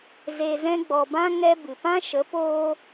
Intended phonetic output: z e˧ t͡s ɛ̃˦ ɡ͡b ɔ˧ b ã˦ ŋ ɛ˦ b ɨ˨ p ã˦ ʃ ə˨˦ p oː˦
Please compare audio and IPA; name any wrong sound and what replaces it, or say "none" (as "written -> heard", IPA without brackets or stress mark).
t͡s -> z